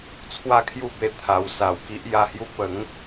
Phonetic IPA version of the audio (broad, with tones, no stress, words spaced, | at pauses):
t͡sʰwa˥˧kʰju˥˧be˧ t̪ʰa˨˩w sa˨˩wki˦ʔ ja˧hju˥˧ pə˨˦ŋ